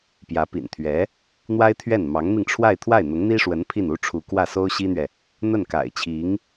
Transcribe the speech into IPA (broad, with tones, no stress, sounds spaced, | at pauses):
p j ä˧˥ p ḭ˨˩ n t̪ʰ ɥ ɛ˧˥ | n̪ w a˥ ɪ̯ t̪ʰ ɥ ɛ˥˩ n m ɑ˧˥ ŋ n̪ i˧ ŋ ʈ͡ʂʰ w a˥˧ ɪ̯ t̪ʰ w a˥˩ ɪ̯ n̪ ʊ˧˥ ŋ n̪ i˥ ʂ w ə˧˥ n pʰ i˥˩ n u˥ ʈ͡ʂʰ u˧˥ k w ä˥˩ s o˥ ʊ̯ ɕ i˥ n̪ ɥ ɛ˨ | n̪ ə˥˩ n k a̰˨˩ ɪ̯ t͡ɕʰ i˧˥ ŋ